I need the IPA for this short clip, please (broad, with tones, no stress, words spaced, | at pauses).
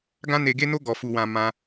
ɡã˦ne˧ɡe˦no˦ ɡɔ˧fu˧wã˧ mã˧